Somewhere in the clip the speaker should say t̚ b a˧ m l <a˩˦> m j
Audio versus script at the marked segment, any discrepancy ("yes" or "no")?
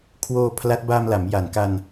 no